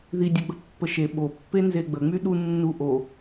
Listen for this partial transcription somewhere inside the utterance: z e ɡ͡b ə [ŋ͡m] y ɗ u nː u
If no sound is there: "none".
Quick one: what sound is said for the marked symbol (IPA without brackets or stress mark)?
ŋ͡m